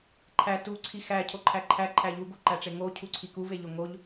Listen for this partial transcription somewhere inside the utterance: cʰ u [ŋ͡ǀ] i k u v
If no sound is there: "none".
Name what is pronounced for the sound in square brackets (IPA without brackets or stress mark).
ǀʰ